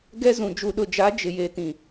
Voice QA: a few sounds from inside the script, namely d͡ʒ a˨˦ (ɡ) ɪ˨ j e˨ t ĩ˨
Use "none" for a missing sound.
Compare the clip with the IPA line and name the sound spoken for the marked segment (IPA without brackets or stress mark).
d͡ʒ